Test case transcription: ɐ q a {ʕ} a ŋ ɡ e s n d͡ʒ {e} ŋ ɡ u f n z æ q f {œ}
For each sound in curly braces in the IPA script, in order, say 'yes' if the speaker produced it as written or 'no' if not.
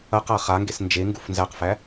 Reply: no, yes, no

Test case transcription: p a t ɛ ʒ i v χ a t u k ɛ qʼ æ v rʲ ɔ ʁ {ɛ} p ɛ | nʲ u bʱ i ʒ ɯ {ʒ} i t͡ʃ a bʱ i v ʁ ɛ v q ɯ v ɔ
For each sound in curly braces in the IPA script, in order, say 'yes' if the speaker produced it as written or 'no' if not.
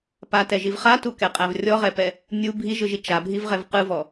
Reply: yes, yes

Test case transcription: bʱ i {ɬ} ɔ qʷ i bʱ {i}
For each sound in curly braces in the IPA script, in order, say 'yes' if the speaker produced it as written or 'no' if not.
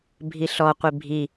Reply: yes, yes

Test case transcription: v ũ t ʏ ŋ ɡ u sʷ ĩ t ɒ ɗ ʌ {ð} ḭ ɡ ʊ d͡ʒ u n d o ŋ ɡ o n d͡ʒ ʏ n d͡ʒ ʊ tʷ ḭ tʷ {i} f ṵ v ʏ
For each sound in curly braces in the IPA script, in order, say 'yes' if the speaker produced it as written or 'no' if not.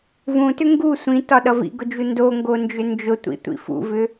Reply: no, no

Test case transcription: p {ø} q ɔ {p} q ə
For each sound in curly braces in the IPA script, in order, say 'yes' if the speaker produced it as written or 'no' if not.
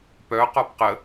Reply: no, yes

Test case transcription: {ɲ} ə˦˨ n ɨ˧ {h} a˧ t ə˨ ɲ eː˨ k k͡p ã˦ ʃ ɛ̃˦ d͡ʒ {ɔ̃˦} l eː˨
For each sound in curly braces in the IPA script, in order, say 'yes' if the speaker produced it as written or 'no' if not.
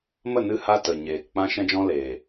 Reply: no, yes, yes

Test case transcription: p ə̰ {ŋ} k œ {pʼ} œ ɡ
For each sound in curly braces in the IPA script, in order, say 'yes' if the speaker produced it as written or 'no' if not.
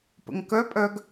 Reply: yes, yes

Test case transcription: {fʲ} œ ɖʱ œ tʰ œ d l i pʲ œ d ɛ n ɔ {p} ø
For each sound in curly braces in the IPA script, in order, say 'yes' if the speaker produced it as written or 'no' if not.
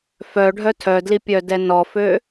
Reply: no, no

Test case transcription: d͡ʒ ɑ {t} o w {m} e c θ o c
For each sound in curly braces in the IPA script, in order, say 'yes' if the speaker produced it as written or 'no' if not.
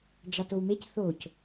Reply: yes, yes

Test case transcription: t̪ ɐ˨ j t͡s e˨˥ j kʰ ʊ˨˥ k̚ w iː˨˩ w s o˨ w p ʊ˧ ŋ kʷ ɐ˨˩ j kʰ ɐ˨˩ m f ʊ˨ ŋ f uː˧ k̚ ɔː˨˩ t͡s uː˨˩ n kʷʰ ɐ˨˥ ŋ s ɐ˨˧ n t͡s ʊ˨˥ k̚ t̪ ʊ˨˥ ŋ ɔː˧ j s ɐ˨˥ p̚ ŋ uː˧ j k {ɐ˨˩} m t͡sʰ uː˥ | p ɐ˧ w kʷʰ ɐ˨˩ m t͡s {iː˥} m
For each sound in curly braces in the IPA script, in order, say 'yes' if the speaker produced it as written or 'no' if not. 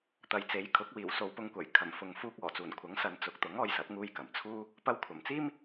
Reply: yes, yes

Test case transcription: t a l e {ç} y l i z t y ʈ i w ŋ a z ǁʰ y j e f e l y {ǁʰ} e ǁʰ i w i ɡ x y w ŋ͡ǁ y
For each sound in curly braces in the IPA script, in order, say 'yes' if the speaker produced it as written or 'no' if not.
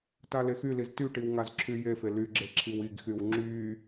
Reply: no, no

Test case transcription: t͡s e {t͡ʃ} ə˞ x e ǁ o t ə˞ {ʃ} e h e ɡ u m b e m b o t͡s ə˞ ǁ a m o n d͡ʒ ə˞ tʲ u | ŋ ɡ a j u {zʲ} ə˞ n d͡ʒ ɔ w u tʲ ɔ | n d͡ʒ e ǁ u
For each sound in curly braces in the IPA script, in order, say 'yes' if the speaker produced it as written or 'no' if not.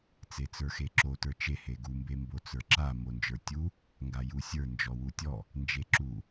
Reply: no, no, no

